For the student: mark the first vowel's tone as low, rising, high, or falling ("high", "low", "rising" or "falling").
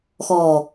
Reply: low